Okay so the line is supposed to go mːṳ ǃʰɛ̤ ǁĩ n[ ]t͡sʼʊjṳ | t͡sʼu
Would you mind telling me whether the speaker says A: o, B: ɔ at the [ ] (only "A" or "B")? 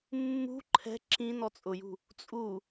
B